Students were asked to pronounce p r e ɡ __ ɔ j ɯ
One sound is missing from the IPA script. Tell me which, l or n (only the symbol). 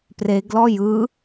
l